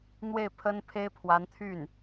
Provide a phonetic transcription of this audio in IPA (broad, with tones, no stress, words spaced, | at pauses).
n̪we˥˩ɪ̯pʰə˥npʰe˥ɪ̯pʰwa˧˥n t̪ʰy˥˩n